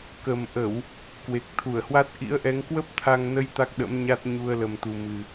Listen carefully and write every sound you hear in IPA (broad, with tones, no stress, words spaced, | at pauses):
kə˨˩mʔə˧˩˨w | kwe˨˩k̚ t̪ʰu˧˩ə̯hwa˦˥t̚ ʔḭ˧˥ə̯ʔɛ˨˦ŋ kwə˦˥p̚t̪ʰa˧ŋnə˨˦j t̪a˦˥k̚ɗə̰˧˥mɲa˦˥t̚ ɲu˧ə̯ lə˨˩mt̪u˨˩mɨ˨˩